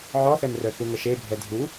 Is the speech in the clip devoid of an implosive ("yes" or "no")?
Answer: yes